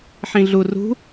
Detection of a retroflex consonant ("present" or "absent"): absent